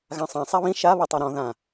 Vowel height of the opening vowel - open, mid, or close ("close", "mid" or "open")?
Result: open